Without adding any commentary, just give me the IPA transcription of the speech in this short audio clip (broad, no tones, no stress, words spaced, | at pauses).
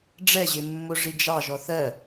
ɖ͡ʐɛʑɪmːʊ ʐid͡ʒɑ ʒɔθɜ